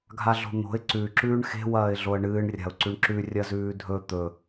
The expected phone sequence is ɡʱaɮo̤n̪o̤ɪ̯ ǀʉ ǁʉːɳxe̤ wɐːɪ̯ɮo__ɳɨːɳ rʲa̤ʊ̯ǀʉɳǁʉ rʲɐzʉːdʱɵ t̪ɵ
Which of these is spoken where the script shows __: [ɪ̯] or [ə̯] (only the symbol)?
ə̯